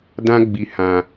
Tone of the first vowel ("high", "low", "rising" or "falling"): high